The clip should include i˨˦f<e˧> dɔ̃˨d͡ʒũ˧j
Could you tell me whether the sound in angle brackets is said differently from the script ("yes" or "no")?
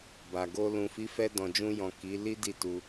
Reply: yes